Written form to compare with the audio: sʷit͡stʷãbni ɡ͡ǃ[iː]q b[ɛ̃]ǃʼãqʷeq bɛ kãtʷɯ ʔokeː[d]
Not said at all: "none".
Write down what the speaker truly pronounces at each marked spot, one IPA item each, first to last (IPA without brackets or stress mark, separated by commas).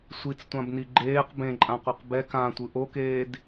eː, ẽ, d